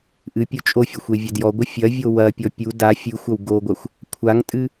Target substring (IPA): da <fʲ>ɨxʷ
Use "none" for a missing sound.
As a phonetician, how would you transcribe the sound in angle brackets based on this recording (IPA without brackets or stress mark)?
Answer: fʲ